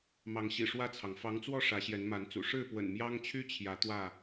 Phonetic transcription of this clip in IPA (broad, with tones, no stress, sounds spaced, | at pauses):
m ɑ˨˦ ŋ ɕ ḭ˨˩ ʂ w ä˥˨ t͡sʰ ɑ˩ ŋ f ɑ˨˦ ŋ t͡s w ɔ˥˨ ʂ ä˨˦ ɕ j ɛ˨˦ n m a˨˦ n t͡s ṵ˨˩ ʂ ɻ̩˥˨ p w ə̰˨˩ n m j ɑ˦ ŋ t͡ɕʰ y˦ t͡ɕʰ j ä˨˦ t̪ w ä˥˨